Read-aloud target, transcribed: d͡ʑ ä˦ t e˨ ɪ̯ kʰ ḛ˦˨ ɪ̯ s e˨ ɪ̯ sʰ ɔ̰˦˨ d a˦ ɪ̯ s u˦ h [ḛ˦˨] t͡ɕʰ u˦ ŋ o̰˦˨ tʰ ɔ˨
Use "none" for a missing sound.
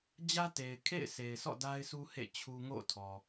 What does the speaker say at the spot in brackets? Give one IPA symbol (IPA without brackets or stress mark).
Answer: ḛ˦˨